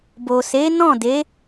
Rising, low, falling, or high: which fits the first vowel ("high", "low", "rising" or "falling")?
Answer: low